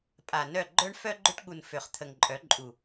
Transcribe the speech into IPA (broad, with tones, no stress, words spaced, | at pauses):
pʼa˨nœ˦˨ ɡ͡ǃœ˦ɳ fœ˦ɡ͡ǃø˦ʈɠu˨n fø˨χ t̪ʰə˨ŋǃʼœ˨˦ǃʼu˨